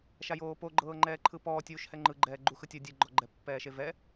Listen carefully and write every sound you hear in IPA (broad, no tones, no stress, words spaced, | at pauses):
ʃajoːpo ɡ͡ǃɤːŋ͡ǃɛːǃʰɯpɔː tʲuːʃhɛŋ͡ǃɯɡ͡ǃɛː ɡ͡ǃuxɯtʲɤ dʲɯɡ͡ǃɔɡ͡ǃɛ pːɛːʃevɛ